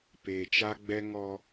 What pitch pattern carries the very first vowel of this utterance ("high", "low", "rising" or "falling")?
low